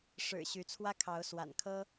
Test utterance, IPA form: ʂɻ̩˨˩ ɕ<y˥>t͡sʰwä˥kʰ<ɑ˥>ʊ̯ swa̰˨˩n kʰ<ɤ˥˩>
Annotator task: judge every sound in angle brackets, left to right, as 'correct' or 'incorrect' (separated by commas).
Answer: incorrect, incorrect, incorrect